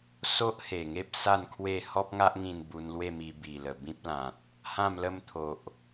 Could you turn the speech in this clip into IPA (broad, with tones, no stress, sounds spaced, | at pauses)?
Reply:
s o˦ ʔ h e˨˩ ŋ e˦ p̚ s a˥˧ n kʰ w e˥˧ h ɔ˦ p̚ ŋ a˦ ʔ ŋ ĩ˧ n b u˧ n l w e˥˧ m i˧ b i˨˩ l ə˨˩ b ĩ˦ p̚ l ã˨ t̚ | h ã˥˧ m l ə˦ m t̪ʰ o˨ ʔ